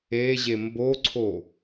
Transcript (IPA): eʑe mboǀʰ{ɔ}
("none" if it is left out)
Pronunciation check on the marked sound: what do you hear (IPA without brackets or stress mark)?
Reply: o